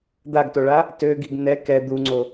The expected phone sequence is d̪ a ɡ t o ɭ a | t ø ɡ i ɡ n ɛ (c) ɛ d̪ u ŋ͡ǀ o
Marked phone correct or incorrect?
incorrect